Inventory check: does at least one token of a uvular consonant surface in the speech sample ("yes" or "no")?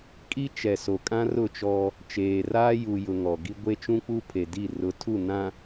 no